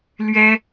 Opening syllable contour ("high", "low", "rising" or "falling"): high